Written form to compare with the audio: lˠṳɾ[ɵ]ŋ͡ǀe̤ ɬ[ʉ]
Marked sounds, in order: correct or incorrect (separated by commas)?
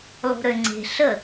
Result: incorrect, incorrect